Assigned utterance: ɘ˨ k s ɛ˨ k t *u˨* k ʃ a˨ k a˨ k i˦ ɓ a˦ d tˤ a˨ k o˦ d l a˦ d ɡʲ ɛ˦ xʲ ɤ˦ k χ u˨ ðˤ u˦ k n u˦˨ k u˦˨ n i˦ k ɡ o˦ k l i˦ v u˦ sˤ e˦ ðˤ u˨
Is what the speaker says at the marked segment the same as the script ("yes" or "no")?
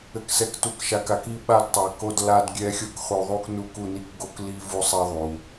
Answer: yes